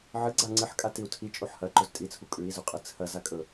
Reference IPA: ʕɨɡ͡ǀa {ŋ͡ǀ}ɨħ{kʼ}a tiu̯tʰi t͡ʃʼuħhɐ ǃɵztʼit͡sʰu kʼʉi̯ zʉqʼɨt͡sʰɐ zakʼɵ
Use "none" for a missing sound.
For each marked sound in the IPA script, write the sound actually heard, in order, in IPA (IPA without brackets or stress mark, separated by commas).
ŋ͡ǀ, kʼ